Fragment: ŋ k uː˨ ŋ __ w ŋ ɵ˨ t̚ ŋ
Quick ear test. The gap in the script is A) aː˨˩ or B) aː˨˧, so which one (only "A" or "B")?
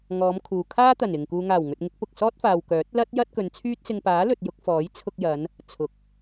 A